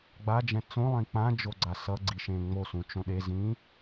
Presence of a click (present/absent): present